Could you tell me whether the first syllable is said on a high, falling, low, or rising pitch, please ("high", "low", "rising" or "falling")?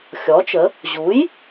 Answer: rising